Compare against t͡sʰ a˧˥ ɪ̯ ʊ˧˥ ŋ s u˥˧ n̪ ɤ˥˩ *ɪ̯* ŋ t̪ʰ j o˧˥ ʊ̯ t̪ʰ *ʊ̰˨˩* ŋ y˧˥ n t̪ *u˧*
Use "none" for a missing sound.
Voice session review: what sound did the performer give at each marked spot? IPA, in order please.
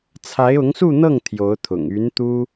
none, ʊ̰˨˩, u˥

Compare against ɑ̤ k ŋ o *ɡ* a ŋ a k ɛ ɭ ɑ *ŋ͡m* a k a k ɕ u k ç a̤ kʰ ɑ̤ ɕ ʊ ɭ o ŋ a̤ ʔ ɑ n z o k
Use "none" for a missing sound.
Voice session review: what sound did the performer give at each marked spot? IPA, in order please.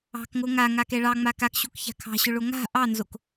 ŋ, ŋ͡m

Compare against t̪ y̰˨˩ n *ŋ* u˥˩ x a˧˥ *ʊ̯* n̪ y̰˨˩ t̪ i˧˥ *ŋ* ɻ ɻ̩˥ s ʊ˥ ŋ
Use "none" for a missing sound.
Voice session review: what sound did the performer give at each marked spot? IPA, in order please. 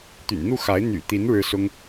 n̪, ɪ̯, n

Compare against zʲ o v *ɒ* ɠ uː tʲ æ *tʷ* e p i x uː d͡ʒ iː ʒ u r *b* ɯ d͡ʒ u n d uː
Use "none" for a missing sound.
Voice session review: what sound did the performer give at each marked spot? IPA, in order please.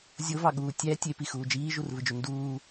ɑ, tʲ, v

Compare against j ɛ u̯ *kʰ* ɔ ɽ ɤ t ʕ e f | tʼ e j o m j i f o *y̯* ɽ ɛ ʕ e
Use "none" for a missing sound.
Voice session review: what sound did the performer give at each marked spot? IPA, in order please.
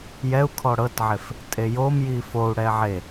kʰ, u̯

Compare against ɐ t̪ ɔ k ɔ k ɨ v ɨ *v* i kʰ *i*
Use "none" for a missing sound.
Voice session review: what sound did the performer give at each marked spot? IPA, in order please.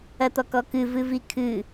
v, ɨ

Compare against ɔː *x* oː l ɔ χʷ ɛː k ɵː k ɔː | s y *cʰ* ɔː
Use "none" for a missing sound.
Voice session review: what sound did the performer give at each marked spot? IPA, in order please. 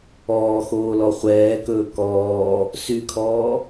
x, kʰ

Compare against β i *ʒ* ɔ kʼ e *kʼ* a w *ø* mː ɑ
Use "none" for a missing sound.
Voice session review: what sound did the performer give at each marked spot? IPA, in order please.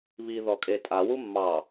ð, tʼ, u

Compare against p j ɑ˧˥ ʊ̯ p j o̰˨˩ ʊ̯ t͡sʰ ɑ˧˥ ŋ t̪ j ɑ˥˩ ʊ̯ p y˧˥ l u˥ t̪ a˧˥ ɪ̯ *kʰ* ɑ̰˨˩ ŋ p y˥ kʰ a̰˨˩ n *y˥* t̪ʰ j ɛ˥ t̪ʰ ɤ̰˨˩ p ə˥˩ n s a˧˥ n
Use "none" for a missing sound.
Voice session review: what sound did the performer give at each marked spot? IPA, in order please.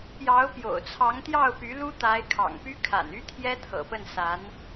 kʰ, y˥

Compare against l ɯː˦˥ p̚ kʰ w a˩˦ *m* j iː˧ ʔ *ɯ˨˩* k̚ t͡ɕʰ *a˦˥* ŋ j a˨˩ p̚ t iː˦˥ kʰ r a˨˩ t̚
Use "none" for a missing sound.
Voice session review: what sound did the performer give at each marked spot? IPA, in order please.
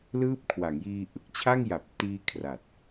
ŋ, ɯ˨˩, a˥˩

